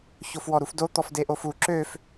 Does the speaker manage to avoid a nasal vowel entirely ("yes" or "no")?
yes